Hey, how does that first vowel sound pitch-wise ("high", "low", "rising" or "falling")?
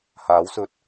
rising